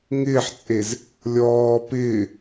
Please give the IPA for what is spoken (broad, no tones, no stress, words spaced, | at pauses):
ŋɪːħt͡sʼez | lʲɔː pɪː